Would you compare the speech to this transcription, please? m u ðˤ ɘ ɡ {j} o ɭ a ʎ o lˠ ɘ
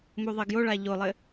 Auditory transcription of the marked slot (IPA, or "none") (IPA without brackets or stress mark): j